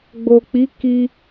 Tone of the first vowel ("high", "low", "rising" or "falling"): low